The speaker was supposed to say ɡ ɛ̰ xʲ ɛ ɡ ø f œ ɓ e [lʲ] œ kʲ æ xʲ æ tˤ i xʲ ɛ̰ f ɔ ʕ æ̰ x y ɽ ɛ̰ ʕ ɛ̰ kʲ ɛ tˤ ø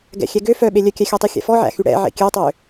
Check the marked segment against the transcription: correct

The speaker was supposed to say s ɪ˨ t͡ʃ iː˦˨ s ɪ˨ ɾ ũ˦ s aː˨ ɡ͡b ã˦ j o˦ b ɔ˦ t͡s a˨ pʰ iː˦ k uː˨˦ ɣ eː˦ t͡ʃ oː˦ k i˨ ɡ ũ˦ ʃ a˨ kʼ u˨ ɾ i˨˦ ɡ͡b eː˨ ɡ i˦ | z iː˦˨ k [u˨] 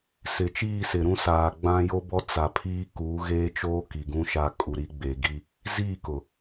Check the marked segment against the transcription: incorrect: ʊ˨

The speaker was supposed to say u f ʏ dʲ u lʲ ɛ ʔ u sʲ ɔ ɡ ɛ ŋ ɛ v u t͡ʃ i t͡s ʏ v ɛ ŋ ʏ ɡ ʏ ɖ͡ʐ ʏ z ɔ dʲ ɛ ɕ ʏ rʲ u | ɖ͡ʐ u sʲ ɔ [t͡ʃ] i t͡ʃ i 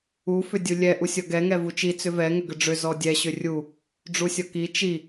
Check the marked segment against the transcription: incorrect: k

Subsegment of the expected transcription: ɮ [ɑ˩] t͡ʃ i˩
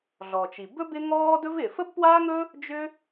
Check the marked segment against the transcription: incorrect: ɔ˩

